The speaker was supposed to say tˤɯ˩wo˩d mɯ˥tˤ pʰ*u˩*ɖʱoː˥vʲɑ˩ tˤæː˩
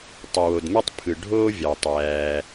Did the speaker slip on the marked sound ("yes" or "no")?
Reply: yes